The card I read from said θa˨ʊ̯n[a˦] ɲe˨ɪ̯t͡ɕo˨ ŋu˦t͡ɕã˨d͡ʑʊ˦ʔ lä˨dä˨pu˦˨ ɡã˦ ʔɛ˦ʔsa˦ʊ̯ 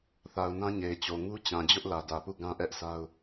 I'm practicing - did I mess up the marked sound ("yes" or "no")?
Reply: yes